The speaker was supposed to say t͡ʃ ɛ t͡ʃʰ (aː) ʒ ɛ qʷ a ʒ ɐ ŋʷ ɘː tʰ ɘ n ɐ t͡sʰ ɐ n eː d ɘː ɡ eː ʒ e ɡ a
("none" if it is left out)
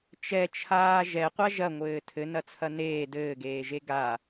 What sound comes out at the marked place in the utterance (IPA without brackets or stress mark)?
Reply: aː